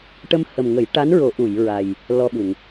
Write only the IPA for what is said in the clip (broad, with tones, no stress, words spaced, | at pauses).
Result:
ʈə˧mhə˨˩mŋə˨˩˦j ʈa˧˥nɹo˨˩˦ʔu˨˩˨j ɹa˨˩j | lɔ˧ɓu˨˩˨ŋ